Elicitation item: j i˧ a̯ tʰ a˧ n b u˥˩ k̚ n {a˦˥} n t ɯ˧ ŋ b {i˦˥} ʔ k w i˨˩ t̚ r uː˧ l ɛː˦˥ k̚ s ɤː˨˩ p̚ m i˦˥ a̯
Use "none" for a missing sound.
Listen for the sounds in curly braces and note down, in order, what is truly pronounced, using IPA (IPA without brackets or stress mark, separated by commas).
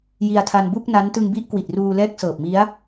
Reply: a˦˥, i˦˥